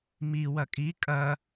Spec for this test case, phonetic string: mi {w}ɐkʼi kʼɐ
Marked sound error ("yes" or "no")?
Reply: no